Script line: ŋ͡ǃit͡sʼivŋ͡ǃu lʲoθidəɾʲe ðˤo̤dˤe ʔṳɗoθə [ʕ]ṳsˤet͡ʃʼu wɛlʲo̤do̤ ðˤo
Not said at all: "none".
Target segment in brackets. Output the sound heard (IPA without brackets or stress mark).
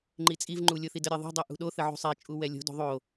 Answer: ʕ